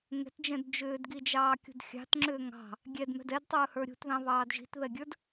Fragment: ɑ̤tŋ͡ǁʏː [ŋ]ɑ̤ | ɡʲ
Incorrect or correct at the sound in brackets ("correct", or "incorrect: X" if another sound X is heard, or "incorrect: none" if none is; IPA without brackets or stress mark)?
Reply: correct